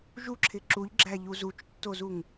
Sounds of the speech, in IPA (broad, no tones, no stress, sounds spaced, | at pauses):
ʒ u ǁʰ ɪ ǁ u ʎ ɡ͡ǁ æ ʎ u z u t͡ʃ tː o z u ŋ